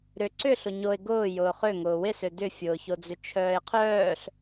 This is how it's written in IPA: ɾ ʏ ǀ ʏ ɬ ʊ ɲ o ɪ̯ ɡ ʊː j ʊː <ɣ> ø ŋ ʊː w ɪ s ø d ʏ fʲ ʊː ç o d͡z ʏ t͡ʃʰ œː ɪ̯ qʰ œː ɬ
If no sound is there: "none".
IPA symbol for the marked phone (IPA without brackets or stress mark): χ